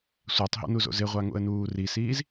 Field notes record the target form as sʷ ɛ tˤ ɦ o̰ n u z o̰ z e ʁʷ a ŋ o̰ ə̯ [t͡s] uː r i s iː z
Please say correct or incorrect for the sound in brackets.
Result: incorrect: n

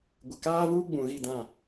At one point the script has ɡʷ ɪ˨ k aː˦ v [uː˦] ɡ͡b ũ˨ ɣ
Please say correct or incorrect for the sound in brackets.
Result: correct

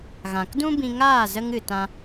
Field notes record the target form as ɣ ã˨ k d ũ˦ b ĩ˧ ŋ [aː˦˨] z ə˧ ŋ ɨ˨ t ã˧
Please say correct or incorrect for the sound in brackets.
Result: correct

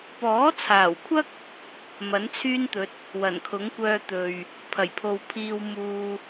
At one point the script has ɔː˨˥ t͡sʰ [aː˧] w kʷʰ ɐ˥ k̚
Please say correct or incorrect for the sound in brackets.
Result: incorrect: aː˨˩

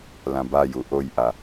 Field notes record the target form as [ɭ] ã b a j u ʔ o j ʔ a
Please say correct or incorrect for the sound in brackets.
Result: incorrect: l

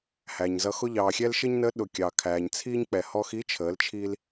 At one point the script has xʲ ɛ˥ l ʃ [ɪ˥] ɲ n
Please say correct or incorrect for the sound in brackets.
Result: correct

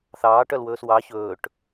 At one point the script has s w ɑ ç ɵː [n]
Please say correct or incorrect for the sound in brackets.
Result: incorrect: ʈ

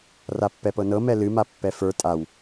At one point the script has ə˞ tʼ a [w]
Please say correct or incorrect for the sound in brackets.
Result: correct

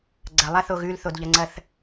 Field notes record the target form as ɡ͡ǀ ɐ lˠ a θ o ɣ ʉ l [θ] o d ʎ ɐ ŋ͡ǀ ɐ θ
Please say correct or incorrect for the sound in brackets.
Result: correct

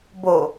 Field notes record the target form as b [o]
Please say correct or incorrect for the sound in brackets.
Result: correct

